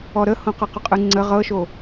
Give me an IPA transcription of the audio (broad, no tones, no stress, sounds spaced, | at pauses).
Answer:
ɔ ɾ ə h õ q ɤ q ʊ qʼ ɯ ŋ͡ǀ ə ʁ ɤ ʃ o